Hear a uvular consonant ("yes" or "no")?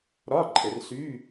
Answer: no